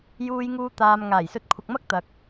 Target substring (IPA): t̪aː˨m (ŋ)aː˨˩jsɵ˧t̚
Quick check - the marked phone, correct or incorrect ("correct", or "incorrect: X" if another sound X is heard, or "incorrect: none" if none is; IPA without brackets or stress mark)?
correct